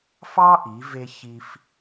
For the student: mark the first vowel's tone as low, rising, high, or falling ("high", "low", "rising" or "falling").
high